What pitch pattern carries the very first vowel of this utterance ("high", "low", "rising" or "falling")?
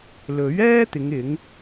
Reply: rising